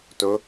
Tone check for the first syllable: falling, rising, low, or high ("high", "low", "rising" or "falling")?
rising